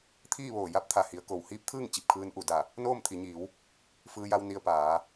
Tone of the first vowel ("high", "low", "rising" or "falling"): falling